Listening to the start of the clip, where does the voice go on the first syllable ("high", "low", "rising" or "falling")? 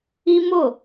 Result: high